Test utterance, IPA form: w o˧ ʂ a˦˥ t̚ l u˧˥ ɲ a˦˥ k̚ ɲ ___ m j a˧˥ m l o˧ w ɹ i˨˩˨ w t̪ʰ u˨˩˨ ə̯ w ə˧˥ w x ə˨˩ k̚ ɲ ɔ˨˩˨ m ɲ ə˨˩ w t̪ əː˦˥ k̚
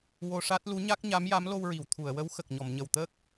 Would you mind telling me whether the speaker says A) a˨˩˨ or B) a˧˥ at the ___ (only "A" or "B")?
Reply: B